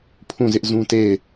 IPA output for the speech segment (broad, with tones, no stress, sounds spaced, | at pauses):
pʰ ũ˦˨ z ɪ˦ ʔ z ũ˦ t e˦˨ ɪ̯